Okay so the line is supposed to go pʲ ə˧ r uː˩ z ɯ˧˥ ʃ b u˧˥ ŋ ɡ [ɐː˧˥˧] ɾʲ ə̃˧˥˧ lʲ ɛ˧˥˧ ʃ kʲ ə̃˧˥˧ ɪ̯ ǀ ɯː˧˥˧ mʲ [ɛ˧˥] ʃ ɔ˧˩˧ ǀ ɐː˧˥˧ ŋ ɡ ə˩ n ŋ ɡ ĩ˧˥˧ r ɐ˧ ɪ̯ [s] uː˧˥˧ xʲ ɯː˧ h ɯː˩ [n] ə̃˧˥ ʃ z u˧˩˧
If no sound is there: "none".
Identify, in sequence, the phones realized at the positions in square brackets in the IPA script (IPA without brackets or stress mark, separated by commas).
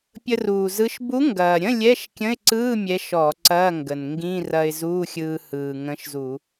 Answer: ɐː˩, ɛ˧˥, z, ŋ